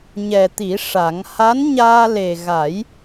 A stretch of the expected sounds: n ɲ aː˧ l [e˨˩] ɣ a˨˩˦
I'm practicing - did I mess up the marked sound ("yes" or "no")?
no